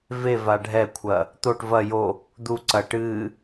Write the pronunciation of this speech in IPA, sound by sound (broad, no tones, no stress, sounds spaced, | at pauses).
v e v a ɖʱ ɛ kʷʰ ɐ | t̪ o ʈ v ɐ j o | d̪ u ǀ ɐ ʈ ɨ